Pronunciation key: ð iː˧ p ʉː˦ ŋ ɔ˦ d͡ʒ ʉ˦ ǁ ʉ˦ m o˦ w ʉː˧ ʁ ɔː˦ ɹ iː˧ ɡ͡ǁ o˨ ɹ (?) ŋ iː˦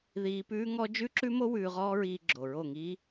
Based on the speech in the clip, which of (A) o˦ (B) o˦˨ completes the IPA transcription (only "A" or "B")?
B